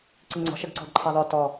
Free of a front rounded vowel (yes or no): no